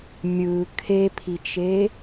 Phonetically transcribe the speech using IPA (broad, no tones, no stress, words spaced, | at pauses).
mʲɯ kʰepʰit͡ʃe